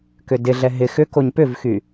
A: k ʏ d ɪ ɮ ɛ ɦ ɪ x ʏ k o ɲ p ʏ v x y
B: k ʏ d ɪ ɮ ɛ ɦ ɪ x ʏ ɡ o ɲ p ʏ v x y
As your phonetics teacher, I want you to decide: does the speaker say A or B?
A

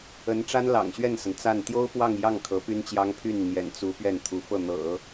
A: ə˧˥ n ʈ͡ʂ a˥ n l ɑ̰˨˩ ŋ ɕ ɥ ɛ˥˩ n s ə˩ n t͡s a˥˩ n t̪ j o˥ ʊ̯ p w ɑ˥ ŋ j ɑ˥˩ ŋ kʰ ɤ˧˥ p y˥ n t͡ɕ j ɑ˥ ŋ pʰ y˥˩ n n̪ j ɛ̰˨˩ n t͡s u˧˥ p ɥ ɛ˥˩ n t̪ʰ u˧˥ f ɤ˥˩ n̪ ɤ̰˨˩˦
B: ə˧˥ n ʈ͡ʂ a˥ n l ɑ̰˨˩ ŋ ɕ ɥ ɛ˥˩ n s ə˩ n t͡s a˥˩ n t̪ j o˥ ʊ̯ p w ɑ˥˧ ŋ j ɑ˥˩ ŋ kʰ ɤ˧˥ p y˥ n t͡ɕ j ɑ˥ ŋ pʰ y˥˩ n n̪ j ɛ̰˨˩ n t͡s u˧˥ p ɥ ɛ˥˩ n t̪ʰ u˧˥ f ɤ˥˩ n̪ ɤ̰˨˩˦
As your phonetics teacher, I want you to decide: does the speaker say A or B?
B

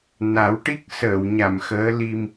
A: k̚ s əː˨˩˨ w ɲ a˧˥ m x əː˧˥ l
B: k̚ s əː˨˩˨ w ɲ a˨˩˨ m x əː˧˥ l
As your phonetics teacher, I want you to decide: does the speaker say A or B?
B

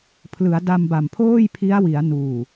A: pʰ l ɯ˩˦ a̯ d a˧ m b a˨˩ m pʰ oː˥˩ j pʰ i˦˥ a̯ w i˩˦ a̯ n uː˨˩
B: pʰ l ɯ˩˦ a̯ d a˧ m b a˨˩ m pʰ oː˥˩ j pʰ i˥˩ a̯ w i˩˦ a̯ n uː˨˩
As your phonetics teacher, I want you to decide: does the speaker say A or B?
A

